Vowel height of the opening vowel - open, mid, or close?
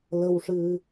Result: mid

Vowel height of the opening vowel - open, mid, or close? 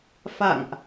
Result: open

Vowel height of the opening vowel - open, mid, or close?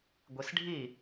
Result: close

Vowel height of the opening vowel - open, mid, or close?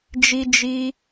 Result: close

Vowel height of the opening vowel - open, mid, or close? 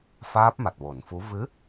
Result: open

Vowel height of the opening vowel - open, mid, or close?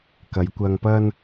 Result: open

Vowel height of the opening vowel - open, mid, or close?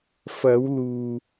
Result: open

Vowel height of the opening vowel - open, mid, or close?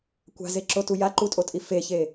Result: open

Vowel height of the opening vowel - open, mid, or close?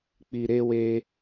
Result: close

